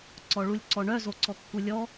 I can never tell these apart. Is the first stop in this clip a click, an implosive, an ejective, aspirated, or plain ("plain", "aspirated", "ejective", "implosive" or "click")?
click